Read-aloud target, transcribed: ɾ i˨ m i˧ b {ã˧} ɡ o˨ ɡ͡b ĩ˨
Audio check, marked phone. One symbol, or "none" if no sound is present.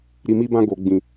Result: ã˧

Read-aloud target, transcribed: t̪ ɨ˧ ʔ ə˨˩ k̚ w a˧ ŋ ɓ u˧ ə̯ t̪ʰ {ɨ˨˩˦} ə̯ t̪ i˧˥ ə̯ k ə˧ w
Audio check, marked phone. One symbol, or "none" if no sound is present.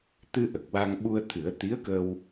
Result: ɨ˨˩˦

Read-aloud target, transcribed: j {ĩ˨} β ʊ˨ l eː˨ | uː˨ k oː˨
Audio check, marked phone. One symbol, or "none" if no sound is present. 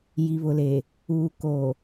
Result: i˨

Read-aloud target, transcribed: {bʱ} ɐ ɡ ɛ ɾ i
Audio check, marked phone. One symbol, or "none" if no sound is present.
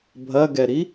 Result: bʱ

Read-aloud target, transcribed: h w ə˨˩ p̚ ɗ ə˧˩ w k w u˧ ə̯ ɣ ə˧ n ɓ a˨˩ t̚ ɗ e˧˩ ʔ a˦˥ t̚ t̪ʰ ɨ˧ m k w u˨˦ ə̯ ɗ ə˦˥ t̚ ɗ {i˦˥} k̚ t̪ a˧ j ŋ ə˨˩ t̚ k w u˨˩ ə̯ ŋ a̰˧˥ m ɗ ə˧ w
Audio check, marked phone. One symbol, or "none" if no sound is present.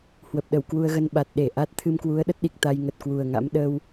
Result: i˨˩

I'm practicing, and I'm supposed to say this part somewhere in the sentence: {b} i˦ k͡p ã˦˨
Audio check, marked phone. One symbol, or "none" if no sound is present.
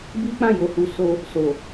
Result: b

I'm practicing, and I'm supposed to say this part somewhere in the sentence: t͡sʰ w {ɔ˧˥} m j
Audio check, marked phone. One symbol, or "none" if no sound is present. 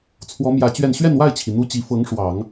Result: ɔ˧˥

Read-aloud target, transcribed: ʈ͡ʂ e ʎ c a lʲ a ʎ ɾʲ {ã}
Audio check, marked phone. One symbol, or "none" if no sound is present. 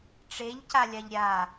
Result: a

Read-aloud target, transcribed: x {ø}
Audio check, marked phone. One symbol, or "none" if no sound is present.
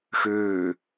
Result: ø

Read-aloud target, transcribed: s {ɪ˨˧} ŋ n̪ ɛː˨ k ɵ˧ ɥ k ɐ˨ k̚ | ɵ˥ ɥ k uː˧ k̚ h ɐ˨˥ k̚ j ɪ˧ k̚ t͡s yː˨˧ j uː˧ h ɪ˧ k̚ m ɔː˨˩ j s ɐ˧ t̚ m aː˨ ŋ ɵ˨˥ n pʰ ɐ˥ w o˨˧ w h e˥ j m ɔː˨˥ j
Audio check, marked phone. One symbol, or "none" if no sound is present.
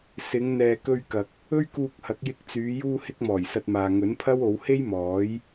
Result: ɪ˨˧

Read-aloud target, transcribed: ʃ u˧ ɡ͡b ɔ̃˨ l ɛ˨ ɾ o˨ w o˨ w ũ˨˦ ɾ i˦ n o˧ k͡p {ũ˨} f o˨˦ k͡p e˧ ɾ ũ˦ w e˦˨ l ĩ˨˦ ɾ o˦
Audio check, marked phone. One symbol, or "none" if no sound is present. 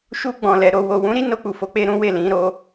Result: u˨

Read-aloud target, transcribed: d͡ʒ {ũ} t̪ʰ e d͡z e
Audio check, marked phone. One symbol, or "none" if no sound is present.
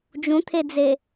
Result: ũ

